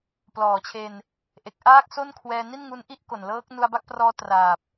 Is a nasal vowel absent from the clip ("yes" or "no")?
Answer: yes